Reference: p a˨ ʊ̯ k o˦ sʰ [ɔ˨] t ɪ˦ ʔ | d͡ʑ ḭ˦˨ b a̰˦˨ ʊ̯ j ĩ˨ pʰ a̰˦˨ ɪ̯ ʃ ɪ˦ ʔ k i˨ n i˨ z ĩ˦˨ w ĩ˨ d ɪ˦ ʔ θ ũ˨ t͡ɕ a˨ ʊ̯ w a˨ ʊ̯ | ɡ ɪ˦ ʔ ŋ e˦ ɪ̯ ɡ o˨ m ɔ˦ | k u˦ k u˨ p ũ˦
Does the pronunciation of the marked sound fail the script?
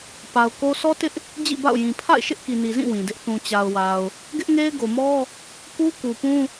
yes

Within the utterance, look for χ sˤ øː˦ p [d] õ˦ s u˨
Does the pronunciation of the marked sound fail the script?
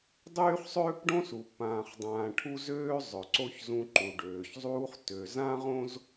yes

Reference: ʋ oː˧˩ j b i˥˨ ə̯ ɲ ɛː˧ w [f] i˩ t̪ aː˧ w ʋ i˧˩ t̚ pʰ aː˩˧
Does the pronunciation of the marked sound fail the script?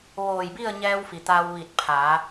no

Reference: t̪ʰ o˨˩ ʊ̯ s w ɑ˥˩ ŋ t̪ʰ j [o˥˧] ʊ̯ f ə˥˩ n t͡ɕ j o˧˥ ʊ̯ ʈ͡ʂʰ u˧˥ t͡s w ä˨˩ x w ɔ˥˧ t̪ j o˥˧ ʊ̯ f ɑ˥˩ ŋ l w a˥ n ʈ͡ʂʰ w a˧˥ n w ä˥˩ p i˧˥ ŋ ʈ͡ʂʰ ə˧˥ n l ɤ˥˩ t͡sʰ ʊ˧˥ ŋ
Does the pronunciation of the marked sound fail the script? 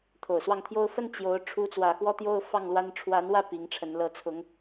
yes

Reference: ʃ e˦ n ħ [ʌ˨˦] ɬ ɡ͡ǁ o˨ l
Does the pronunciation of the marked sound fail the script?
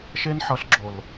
no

